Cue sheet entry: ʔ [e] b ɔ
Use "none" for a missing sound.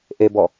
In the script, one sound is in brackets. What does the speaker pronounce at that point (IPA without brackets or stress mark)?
e